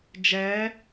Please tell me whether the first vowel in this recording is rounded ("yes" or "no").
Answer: no